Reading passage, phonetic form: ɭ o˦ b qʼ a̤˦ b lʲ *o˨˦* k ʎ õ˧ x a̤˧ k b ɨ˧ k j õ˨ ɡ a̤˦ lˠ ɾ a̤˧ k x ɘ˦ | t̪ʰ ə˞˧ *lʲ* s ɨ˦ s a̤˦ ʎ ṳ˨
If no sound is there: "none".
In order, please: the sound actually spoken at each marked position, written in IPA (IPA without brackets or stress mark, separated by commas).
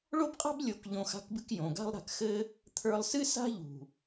o˨˦, lˠ